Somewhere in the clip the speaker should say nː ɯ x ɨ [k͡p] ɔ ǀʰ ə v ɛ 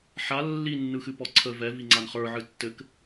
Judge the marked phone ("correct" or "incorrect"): incorrect